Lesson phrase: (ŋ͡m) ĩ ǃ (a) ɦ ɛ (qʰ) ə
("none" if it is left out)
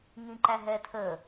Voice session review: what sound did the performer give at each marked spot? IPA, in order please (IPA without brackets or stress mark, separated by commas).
ŋ, æ, tʰ